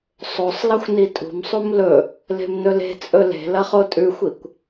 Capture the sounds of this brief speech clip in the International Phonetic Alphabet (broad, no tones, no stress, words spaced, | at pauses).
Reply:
sˤosˤlɐxʷ nitʼṳmsˤum lɵ | le̤mnɵle̤t͡sʼɵ le̤ lɐχotʼʉxʷikʷ